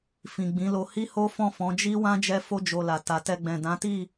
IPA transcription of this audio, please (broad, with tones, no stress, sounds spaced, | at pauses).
f ĩ˨ ɡ͡b ĩ˨˦ l o˧ h i˦ h o˦ f ɔ̃˦˨ f ɔ̃˨˦ d͡ʒ i˦ w ã˦ d͡ʒ ɛ˦ f o˦ d͡ʒ o˧ l a˨ t a˨ t ɛ˧ ɡ͡b ɛ̃˨ d ã˨˦ t i˦˨